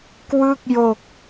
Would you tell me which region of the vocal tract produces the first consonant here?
velum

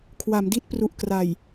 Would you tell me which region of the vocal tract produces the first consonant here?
velum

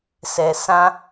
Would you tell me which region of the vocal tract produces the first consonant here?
tongue tip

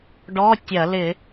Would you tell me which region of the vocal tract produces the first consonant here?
retroflex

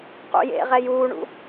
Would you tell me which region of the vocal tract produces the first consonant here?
uvula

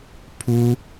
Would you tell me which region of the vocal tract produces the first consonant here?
lips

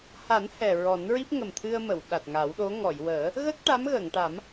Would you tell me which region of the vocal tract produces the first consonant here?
throat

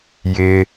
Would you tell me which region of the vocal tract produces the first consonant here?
palate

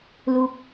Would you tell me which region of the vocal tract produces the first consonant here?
tongue tip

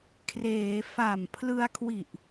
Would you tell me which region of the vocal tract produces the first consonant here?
velum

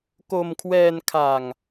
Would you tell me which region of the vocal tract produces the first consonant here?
velum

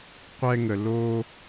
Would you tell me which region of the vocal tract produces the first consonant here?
uvula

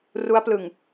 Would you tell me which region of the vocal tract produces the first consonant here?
tongue tip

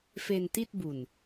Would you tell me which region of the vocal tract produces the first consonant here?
lips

